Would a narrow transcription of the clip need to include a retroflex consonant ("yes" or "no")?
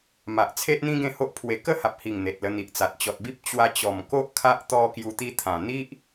no